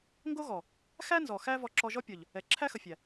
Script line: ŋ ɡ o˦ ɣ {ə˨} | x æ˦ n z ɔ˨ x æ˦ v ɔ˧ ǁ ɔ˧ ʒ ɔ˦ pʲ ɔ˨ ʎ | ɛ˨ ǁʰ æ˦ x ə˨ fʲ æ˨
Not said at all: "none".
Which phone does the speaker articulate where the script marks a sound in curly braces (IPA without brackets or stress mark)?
ɔ˨